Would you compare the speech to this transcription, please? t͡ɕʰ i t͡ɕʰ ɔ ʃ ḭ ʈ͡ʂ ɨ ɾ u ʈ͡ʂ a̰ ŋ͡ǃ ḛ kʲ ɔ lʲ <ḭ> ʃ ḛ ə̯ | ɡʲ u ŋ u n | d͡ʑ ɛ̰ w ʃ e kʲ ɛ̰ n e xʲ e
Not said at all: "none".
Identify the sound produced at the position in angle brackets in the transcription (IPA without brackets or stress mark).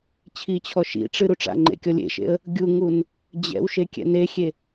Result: ḛ